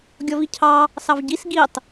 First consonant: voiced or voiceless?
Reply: voiced